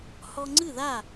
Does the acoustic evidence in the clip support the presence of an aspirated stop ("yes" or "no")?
no